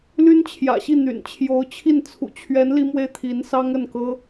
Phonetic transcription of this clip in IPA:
l y˥ n t͡ɕʰ j ä̰˨˩ ɕ i˥˩ n̪ y̰˨˩ n t͡ɕʰ j o˧˥ ʊ̯ t͡ɕʰ i˥˩ n t͡sʰ ṵ˨˩ t͡ɕʰ ɥ ɛ˧˥ n l i˥ m w e˥ ɪ̯ t̪ʰ i˧˥ n s ɑ˥ ŋ ə˥˩ n k ɤ˥

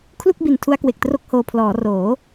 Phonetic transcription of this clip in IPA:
kʰ l u˥˩ k̚ b i˨˩ n tʰ u˦˥ a̯ k w e˨˩ k̚ t r o˥˩ k̚ h oː˧ pʰ l ɔː˩˦ r oː˩˦

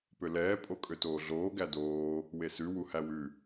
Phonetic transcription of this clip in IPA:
p ø l ɛː pʼ o kʼ ø t oː ɮ oː ɡ æ d oː | w e s ʉ w u h æ w ʉ

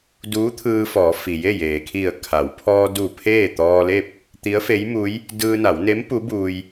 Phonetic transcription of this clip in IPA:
d uː˧˥ t̪ʰ ɯː˧ f ɔː˩˧ f i˩ j e˥˨ j eː˩ kʰ i˧˩ ə̯ kʰ a˩˧ w pʰ ɔː˧ d u˧˩ pʰ eː˥˨ t̪ ɔː˧ l e˥˨ p̚ | t̪ i˧˥ ə̯ f e˧˥ j m u˧˥ j | d ɯː˧ n a˩˧ w n e˧˥ m p u˧˥ b uː˧ j

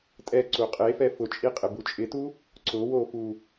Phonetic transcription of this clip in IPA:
tʼ ɛ ǀ u qʼ e f ɛ f ʊ t͡ʃʼ i qʼ ɪ b u t͡ʃʼ ɪ t u | ǀ ʊ w o f u

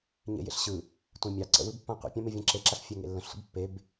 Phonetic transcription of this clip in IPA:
ɲ ḛ j ḛ ɬ ɕ ɯ | tʷ ẽ mʲ ɑ ǀ ə̰ w ɯ b pː ã qʷ ə̰ pʲ ã m e vʲ ɛ̃ ǁ e ǁ a ɬ fʲ ɛ ŋ ḛ lː ə̃ ɬ sʷ ə̰ b pː e b

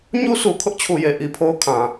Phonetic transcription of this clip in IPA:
ɲ u˦ sʰ u˨ kʰ ʊ˦ ʔ t͡ɕʰ u˨ j e˨ ʔ i˨ pʰ o˦ ʊ̯ kʰ ã˨

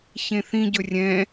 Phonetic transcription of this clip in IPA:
ç ẽ θ ĩ ɟ ɵ rʲ ɛ̃

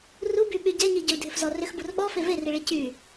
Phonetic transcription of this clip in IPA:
r u b y ɓ y ɟ ɛ ɲ i ɟ ʏ l dʱ ʏ f z ɔ r ʏ x b u r ɓ ɔ f e v e r i ɭ i c y

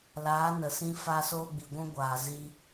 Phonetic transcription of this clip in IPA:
l aː˨˦ n ə˨ s ĩ˦ f a˦ s oː˦ ɡ͡b i˨ ɡʷ ũ˦ ɡʷ aː˨ z i˧

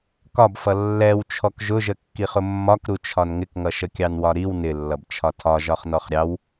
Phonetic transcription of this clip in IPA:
k ɒ b f ʌ lː ɛ w t͡ʃʰ ɔ k ʒ ʊ ʒ ə kː i χ ʊ mː ɒ k ɾ u t͡ʃʰ ɒ n ŋ ɪ k ŋ ʌ ʃ ə kʲ ɑ n w ɒ ɾ i w n ɪ lː ʌ b t͡ʃʰ ɒ tʰ ɒ ʒ ɒ χ n ɔ χ ɾʲ ɑ w

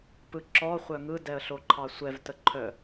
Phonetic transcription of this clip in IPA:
p ɯ ǁ ɔ χʷ œ ŋ ɯ d ɛ ə̯ ɬ o ǃʰ ɑ sʷ ɛ v t ə ǃʰ œ

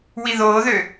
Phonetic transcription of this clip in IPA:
w i ð oː ð ø

